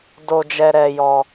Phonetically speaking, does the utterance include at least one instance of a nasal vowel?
no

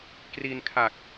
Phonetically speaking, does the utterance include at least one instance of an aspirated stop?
yes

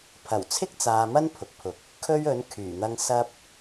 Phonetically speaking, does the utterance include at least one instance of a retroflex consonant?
no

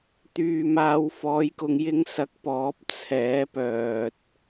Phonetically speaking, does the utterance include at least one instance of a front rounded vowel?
yes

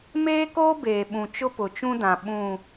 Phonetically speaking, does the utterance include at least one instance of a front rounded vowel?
no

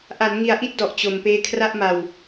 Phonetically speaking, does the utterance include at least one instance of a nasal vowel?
no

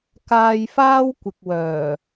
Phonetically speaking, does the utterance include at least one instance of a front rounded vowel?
yes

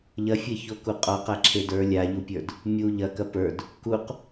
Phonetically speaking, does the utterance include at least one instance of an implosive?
no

